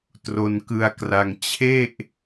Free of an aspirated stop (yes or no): no